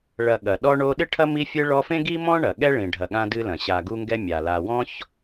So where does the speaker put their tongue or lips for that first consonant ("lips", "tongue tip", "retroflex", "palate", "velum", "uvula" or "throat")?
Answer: retroflex